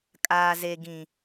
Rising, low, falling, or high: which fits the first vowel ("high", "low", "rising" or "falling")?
low